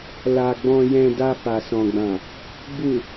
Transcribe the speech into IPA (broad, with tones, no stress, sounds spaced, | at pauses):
l a˨ ɡ͡b ɔ̃˨ j ɛ̃˨ d a˧ f a˨ s ɔ̃˨ ɡ͡b ã˨ | b u˨